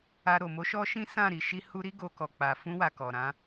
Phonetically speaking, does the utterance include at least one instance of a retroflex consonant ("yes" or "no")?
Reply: no